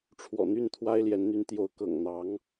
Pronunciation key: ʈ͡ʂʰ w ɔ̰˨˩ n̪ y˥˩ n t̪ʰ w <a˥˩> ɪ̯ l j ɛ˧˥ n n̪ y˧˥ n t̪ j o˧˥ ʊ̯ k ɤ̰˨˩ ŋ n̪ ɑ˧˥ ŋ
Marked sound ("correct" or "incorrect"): incorrect